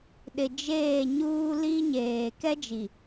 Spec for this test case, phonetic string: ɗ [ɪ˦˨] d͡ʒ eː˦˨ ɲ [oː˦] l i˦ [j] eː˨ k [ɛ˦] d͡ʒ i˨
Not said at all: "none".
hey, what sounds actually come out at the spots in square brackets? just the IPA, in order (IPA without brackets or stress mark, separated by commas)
ɪ˨, uː˦, ɲ, ɛ˦